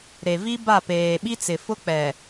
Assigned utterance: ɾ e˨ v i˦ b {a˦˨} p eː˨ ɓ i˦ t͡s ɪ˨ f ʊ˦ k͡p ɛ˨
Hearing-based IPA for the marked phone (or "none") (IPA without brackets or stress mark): a˦˨